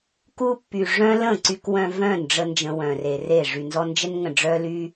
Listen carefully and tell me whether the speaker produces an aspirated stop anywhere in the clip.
no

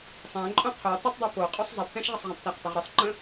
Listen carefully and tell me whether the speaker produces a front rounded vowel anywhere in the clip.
no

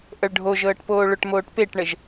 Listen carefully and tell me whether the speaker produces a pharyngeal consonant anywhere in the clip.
no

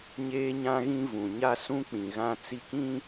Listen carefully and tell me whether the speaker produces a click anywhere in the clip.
no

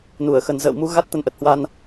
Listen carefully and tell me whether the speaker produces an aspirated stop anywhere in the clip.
no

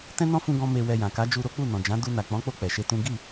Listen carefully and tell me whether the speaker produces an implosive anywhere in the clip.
no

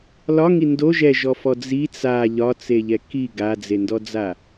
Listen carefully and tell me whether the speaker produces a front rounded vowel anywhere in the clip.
no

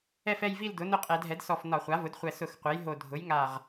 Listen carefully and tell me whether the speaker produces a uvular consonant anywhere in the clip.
yes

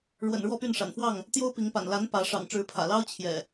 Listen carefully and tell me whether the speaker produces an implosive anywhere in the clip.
no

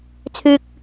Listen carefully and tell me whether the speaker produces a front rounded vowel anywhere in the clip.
yes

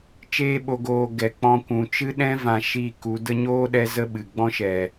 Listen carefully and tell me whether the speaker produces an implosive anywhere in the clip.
yes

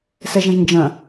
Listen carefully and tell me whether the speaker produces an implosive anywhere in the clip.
no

